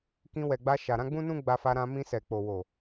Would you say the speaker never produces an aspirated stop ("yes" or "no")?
yes